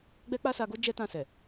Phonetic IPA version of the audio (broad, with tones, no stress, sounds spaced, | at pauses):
ɡ͡b ɛ˦ k͡p a˦ s a˧ ɡ o˦ d͡ʒ ɛ˦ t ã˧ s ɛ˨